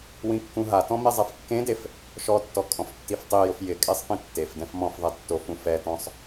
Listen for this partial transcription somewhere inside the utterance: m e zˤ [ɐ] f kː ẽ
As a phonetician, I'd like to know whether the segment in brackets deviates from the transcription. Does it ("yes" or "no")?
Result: yes